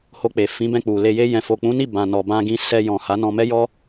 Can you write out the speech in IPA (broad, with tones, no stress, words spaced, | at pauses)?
ho˧k͡pe˨ fĩ˨˦bɛ̃˧k͡pu˨ le˧je˦jɛ̃˧ fo˨k͡pũ˨˦ni˦˨ bã˨nɔ˨ bã˧ɡĩ˧ sɛ˧jɔ̃˨ ha˨˦nɔ̃˧mɛ˦jɔ˦